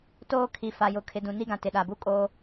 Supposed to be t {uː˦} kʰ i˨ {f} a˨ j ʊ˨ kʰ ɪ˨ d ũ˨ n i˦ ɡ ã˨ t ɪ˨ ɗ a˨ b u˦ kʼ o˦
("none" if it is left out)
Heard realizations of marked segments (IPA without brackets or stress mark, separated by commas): oː˦, f